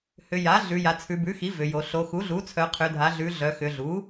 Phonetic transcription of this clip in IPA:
h ʏ˩˧ j a˩˥ ɮ ʉ˩˧ j a˩˧ t͡sʰ ʉ˩˧ b ʉ˩˥ x i˩˥ v ʏ˩˧ j o˩˧ ɬ o˩˧ x u˩˥ ɮ u˩˥ t͡sʰ œ˩˧ qʰ ʏ˩˧ dʱ a˩˧ ɮ ʉ˩˧ ɮ œ˩˧ x ʏ˩˧ ɮ u˩˥

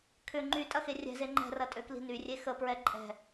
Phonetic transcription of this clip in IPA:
kʰ ʏ ŋ͡ǃ y tʼ ɐ x e rʲ ɛ̤ z e ŋ͡ǃ ɛ̤ r ɐ tʼ ø k l i̤ n y rʲ e x ə p ɹ ɛ ǃʼ ɛ̤

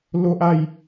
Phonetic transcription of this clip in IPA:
l o˦ ʔ a˥˧ j

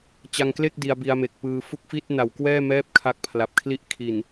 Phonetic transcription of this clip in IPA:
t͡ɕ a˧ ŋ k l e˥˩ k̚ d i˧ a̯ b i˧ a̯ m e˨˩ k̚ p ɯː˧ f u˥˩ k̚ f i˥˩ t̚ n a˨˩ w k w ɛː˥˩ m ɛː˦˥ p̚ kʰ a˦˥ k̚ pʰ l a˨˩ p̚ kʰ l i˥˩ ʔ kʰ i˨˩ n

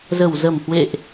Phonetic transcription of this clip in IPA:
z ə˧˩ w z ə˧˩ m h w ḛ˧˨ ʔ

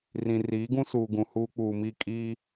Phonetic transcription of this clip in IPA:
r ĩ˨ r iː˨˦ ɡ ũ˦ s uː˨ ɡ ũ˨ h uː˦ k͡p uː˨ m i˦˨ kʼ iː˦

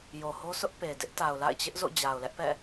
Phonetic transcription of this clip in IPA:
j o˨ h o˦ s ʊ˦ ʔ p e˨ d ɪ˦ ʔ t a˨ ʊ̯ l a̰˦˨ ɪ̯ t͡ɕ ɪ˦ ʔ z o̰˦˨ d͡ʑ a˨ ʊ̯ l ɛ˦ ʔ p ɛ̰˦˨

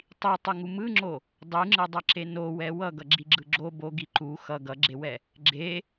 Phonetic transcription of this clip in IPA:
tˤ i tˤ ɯ ŋ u m ɯ ŋ͡ǁ o | dˤ ɯ ŋ͡ǁ ɯ dˤ ʌ ǁ e n o w ɛ w ʌ ɡ ʌ ɡ͡ǁ i ɡ͡ǁ ɯ ɡ͡ǁ o b o ɡ i ǃ u x ʌ ɡ ʌ ɡ͡ǁ e w ɛ | ɡ͡ǁ e

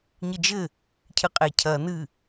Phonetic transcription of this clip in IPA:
ɲ ɨ d͡ʒ ɘ | cʰ ɨ qʼ e cʰ ɐ n ɨ

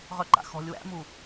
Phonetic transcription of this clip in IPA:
ʁ œ ǃ a̰ x ɔ̤ lʲ w æ̰ m u

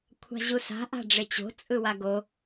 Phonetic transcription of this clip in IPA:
kʷʰ a̤ ʑ u s a̤ ʔ a̤ ɖ͡ʐ e t͡ɕ o̤ t͡sʼ ɯ w a ɡ o

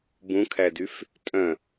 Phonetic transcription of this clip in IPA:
b ũ kʰ æ d y f | tʼ œ̃

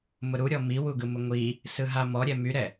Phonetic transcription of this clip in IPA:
m ʊ ɾ u ɾʲ ɔ m i w u ɡ ɯ m ʊ ŋʷ i | s ɯ ɦ a m ɔ ɾʲ ɛ m y ɾ ɛ

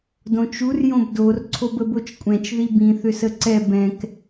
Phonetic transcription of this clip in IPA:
d õ t͡ʃ u r j õ b d o r ǀʰ o b ə b o t͡ʃ kʷʼ ɛ̃ t͡ʃ ð i b ĩ θ ʏ s ə ǀ ɛ b ɛ̃ k

